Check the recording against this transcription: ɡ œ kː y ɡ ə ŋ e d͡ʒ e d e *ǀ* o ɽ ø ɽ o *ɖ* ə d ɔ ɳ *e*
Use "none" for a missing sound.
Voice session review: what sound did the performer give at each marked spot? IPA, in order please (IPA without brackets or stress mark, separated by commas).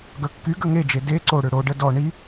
ǀ, ɖ, i